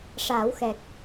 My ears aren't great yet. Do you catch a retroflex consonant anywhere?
yes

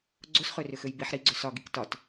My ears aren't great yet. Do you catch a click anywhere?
yes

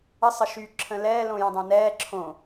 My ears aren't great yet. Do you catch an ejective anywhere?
no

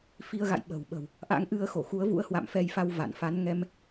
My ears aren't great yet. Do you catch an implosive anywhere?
yes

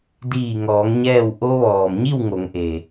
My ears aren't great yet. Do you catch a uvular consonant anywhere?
no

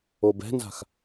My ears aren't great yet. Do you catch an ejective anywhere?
no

